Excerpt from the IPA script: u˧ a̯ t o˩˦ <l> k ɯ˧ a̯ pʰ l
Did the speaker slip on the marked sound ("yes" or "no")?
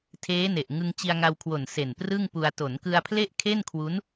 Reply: yes